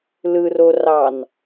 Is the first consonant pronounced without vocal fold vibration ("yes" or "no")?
no